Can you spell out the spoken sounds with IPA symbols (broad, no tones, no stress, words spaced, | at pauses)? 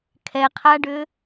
kʰɛqʰaɖʏ